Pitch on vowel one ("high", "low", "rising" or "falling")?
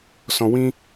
low